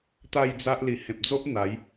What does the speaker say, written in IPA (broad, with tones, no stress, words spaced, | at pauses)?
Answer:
t̪a˥˧jd͡za˦ʔ li˨˩hẽ˨p̚d͡zo˦ʔ n̪a˨˦j